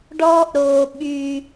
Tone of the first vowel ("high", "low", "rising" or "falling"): high